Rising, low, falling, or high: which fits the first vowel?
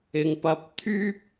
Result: low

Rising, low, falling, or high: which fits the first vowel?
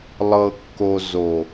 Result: low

